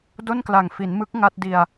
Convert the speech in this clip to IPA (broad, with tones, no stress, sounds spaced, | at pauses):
d o˥˩ n k l a˨˩ ŋ f i˩˦ n m ɯ˦˥ k̚ ŋ a˥˩ t̚ d i˧ a̯